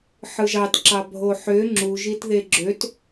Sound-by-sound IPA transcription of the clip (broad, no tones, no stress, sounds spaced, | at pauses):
ħ ɯ ʒ ɑ t ǁ ɑ bʱ o ħ ø ŋ͡ǁ u ʒ i t ð e ɡ͡ǁ ø t